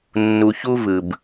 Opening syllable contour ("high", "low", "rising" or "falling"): low